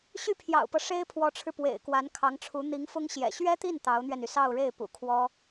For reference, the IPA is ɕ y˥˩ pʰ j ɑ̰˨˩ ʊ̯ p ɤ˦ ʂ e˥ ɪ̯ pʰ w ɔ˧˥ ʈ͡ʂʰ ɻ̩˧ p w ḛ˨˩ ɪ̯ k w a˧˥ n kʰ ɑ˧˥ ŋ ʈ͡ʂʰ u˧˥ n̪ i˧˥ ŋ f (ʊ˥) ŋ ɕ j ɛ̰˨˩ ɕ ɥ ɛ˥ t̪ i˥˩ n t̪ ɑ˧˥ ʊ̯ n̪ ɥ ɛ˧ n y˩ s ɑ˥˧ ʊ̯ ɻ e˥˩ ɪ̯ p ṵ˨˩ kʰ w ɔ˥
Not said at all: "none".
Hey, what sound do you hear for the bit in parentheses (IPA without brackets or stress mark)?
ʊ˥